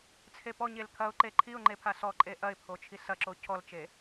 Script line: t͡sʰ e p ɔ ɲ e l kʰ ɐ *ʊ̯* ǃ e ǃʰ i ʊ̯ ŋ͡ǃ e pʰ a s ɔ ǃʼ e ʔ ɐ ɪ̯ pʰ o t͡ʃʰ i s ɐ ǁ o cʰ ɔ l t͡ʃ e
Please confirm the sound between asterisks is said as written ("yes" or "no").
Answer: yes